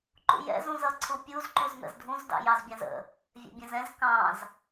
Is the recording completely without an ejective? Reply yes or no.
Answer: yes